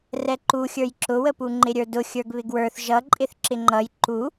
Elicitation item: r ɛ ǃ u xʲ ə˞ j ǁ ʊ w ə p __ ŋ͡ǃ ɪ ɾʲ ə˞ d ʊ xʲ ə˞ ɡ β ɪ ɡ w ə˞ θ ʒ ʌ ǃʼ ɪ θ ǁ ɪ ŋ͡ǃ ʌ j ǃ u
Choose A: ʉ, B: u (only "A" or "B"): B